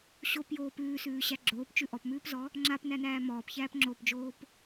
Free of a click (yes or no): no